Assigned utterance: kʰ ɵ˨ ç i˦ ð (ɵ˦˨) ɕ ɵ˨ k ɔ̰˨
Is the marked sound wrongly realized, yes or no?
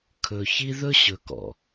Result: yes